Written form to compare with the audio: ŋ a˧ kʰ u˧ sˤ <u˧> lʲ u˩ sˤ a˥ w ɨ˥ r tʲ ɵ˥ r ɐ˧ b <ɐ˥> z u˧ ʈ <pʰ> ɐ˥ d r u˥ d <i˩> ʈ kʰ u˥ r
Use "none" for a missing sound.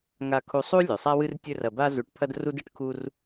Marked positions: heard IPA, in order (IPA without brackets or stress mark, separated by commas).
u˥, a˥, pʰ, ɨ˩